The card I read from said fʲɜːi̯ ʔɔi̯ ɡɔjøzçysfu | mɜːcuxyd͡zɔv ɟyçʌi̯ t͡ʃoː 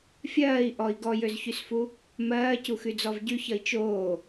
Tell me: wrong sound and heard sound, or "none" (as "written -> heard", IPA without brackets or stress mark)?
none